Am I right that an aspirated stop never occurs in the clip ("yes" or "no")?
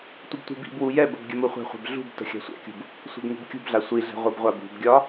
yes